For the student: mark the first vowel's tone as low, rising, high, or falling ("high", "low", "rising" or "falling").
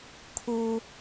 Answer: high